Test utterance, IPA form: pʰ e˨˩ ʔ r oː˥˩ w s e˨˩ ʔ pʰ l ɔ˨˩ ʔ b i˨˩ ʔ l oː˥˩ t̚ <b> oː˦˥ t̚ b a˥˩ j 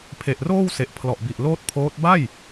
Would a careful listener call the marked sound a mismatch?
yes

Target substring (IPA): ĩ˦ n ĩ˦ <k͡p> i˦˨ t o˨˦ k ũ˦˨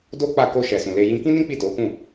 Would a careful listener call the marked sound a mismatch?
no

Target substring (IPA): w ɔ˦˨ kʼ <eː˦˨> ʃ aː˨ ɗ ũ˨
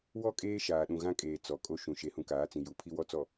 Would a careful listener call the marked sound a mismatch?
yes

